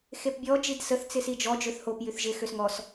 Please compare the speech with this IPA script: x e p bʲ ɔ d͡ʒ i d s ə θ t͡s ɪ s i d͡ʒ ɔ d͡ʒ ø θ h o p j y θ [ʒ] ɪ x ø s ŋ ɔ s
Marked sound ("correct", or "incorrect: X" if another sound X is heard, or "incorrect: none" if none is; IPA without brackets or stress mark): correct